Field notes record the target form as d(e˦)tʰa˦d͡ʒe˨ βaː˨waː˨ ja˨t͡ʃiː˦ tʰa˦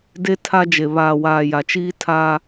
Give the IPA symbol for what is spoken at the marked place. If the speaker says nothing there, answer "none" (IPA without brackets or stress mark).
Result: e˦